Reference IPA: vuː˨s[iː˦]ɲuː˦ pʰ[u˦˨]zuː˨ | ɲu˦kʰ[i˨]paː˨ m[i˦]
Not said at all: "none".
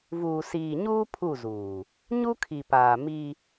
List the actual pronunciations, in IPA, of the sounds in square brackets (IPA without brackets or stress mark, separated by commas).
iː˨, u˦˨, i˨, i˦